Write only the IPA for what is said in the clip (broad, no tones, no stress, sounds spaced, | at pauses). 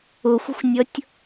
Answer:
ʊ xʷ ə̤ xʷ nʲ ʌ tʲ